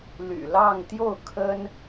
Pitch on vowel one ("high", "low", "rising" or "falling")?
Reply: low